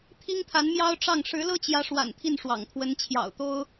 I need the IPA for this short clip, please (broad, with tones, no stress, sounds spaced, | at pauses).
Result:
t̪ʰ i˥ ŋ t̪ʰ a˧˥ n m j ɑ˥ ʊ̯ ʈ͡ʂ ɑ˥˩ ŋ ʂ ɻ̩˧˥ l ɤ˥ t͡ɕ j ä˧˥ ʂ w a̰˨˩ n t̪ʰ i˥˩ n ʂ w ɑ̰˨˩ ŋ t̪ʰ w ə˧˥ n t͡ɕʰ j ɑ̰˨˩ ʊ̯ t̪ o˥ ʊ̯